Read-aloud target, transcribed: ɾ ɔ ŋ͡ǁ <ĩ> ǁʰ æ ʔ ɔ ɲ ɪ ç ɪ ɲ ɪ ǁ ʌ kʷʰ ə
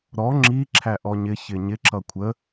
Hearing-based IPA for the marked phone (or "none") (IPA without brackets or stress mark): i